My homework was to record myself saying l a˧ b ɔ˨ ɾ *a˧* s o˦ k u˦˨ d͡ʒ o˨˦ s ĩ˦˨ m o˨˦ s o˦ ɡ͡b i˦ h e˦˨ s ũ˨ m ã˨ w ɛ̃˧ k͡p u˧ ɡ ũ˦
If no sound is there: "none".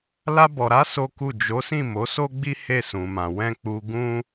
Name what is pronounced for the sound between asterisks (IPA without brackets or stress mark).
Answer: a˨˦